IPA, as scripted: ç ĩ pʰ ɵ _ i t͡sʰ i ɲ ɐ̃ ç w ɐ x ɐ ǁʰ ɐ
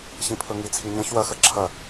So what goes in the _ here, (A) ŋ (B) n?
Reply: A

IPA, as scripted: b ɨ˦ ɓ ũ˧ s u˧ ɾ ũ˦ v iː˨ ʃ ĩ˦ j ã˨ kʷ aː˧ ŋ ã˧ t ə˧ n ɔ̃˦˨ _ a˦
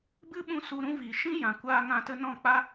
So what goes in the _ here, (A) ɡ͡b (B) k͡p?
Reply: B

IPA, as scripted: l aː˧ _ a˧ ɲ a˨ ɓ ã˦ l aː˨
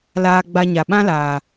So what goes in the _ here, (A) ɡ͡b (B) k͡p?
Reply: A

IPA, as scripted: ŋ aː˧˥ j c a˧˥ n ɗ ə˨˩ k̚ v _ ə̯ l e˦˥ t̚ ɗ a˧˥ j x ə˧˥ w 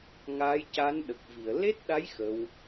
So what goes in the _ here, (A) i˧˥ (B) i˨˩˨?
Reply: B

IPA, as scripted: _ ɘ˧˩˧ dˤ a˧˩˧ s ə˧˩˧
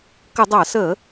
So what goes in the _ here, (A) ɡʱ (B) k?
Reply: B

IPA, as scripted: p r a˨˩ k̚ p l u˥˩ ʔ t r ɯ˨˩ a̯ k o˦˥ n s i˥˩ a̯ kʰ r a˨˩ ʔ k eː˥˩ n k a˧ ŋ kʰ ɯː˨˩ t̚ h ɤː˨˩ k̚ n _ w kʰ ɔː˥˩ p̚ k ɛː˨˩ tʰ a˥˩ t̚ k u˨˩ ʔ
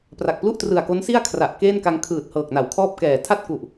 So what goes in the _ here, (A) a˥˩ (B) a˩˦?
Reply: B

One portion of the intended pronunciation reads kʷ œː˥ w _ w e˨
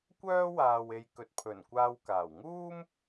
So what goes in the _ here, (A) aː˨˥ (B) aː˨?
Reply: B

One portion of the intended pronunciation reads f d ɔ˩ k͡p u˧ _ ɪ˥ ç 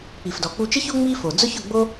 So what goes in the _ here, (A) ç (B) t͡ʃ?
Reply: B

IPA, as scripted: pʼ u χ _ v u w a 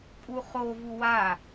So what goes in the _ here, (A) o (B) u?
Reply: A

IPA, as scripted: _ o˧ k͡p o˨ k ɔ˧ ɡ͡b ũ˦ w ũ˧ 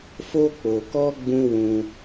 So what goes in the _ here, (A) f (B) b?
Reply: A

